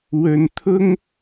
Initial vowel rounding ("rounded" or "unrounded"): rounded